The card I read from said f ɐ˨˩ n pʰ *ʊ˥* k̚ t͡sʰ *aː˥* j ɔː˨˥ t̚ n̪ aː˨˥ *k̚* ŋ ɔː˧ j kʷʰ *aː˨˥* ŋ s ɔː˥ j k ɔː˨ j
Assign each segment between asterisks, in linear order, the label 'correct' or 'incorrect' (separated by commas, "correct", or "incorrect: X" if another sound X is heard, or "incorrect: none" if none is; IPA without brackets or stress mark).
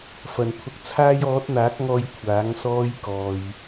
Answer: incorrect: ʊ˧, correct, correct, correct